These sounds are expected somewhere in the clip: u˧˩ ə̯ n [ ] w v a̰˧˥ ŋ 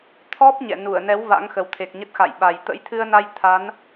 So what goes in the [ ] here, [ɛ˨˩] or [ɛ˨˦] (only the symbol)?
ɛ˨˦